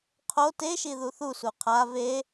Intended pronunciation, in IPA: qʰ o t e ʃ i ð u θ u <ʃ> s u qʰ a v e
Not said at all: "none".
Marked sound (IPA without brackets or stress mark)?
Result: none